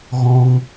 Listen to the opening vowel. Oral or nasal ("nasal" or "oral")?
nasal